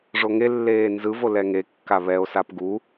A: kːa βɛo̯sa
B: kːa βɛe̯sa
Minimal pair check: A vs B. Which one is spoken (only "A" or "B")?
A